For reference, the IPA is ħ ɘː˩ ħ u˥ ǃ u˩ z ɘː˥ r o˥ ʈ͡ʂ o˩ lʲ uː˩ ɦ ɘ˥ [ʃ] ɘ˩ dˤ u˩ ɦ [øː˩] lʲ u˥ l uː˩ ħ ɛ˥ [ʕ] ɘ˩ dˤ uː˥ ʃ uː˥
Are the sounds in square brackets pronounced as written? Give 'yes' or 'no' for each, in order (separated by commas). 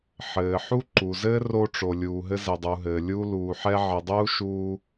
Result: no, no, yes